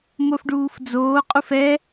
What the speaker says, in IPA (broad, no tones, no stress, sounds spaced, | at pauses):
m o f ɖ uː f d͡z oː qʼ u f ɛ